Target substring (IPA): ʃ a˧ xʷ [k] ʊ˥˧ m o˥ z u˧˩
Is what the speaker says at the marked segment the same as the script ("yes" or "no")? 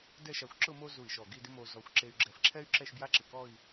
no